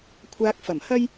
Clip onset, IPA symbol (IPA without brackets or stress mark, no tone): kʷʰ